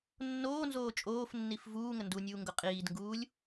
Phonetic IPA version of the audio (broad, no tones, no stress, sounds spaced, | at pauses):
nː oː n z oː t͡ʃʼ oː f nː i f v uː ŋ ə n d u nʲ uː ŋ ɡ ʊ qʼ iː d ŋ ɡ uː lʲ